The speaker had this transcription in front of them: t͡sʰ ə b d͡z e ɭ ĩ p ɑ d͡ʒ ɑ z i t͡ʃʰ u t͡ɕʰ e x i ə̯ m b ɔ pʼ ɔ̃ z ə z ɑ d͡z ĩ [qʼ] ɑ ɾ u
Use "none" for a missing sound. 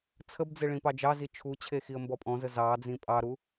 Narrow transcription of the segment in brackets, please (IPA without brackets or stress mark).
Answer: pʼ